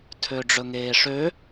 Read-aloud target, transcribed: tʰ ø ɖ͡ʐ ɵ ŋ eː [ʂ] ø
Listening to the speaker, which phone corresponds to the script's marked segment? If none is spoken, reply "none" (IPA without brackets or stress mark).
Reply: ʂ